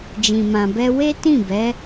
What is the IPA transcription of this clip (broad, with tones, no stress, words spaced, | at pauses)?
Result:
d͡ʒĩ˨mã˨bɛ˧ we˦tĩ˦˨bɛ˨˦